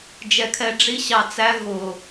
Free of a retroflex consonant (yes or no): no